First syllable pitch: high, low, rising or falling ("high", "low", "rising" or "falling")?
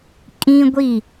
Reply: high